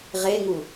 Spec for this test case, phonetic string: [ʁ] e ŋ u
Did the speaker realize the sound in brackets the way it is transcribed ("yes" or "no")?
yes